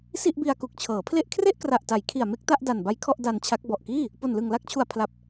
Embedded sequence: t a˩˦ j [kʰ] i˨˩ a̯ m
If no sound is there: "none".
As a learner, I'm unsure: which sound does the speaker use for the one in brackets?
kʰ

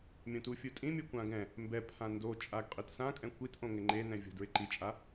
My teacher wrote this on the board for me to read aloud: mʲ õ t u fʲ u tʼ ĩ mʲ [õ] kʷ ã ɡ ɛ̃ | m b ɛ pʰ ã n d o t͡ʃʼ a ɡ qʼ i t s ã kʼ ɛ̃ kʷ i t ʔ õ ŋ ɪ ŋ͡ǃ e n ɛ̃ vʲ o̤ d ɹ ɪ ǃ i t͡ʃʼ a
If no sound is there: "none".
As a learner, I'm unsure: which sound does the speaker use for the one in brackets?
o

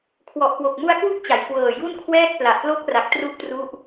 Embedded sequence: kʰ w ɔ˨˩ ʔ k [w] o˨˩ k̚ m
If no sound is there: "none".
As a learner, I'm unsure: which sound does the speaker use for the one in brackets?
w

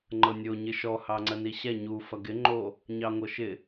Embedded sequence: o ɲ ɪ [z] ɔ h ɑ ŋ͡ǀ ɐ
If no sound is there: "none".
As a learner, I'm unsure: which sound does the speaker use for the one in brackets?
ʃ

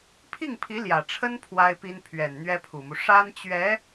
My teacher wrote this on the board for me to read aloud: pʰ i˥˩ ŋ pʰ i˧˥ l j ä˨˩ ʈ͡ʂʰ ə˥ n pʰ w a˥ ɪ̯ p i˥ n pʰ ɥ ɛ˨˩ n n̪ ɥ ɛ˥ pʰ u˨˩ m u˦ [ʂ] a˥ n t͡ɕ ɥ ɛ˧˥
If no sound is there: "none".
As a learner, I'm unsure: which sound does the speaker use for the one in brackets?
ʂ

